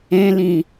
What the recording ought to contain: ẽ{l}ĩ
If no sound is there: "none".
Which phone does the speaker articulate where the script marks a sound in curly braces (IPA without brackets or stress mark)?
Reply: l